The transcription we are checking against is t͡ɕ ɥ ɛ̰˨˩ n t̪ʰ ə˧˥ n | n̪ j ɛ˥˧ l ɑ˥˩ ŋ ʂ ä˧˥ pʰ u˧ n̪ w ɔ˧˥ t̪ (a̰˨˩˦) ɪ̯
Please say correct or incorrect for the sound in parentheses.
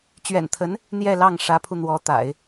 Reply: correct